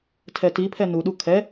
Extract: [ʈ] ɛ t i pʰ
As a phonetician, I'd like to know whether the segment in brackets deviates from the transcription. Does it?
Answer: yes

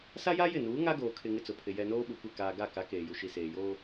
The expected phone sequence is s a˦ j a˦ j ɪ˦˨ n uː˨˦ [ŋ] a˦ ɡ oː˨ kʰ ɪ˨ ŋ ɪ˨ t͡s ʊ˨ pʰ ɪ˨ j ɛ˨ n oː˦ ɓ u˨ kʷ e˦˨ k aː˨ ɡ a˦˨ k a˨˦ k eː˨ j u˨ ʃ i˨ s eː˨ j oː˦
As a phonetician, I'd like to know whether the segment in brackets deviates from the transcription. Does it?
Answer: no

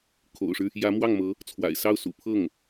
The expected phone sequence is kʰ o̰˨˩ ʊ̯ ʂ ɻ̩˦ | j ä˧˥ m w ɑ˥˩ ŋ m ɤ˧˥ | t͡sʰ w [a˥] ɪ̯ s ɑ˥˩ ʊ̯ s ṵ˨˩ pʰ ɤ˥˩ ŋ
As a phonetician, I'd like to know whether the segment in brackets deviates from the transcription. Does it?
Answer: yes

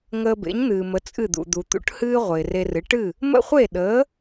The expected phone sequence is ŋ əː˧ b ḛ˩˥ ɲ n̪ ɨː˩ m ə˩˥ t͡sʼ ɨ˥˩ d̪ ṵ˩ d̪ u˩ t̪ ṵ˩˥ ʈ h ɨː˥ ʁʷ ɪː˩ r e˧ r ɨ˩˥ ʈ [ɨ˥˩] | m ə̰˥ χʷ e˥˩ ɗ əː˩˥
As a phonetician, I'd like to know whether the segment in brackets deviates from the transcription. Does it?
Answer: no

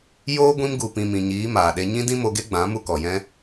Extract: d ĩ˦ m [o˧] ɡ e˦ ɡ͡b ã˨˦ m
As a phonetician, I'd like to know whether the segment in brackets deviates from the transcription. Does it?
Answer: no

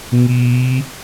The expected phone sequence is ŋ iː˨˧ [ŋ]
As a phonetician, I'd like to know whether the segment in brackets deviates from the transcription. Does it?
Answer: yes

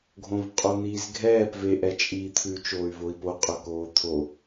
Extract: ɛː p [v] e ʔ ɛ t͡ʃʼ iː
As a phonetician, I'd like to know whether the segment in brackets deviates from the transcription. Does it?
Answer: no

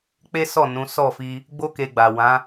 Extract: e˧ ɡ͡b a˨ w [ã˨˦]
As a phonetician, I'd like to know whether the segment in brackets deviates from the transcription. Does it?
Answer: no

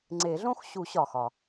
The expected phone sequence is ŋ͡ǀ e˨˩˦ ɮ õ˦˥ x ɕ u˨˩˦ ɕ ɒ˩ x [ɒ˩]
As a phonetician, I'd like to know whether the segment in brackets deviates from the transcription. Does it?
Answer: no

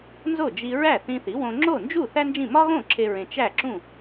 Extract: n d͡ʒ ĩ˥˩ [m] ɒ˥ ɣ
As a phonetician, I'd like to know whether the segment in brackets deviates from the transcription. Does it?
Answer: no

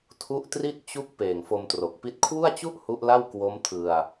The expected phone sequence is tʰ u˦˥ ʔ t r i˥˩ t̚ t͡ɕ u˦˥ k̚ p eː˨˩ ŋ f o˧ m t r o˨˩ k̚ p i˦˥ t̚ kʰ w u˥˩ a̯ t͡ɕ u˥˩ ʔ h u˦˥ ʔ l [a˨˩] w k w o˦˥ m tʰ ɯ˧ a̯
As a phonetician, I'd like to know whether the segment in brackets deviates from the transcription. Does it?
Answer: yes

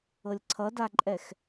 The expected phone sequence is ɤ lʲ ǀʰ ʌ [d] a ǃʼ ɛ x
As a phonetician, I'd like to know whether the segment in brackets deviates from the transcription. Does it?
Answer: no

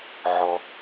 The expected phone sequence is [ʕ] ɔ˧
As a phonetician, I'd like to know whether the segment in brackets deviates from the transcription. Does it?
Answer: no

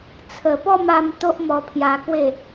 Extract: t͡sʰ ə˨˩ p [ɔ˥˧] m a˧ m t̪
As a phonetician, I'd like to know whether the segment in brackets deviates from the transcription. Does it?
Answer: no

